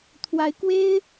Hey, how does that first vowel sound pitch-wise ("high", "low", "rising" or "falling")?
rising